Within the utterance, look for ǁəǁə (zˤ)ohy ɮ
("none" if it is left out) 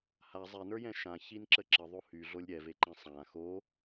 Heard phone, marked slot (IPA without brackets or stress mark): ðˤ